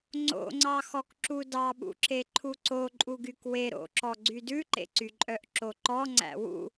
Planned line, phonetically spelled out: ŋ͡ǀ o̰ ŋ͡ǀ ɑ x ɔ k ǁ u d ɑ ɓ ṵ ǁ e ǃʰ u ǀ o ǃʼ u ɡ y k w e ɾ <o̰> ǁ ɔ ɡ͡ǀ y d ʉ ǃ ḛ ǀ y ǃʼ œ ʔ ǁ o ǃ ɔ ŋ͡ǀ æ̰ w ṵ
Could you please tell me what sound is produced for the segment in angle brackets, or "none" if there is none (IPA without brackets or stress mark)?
o̰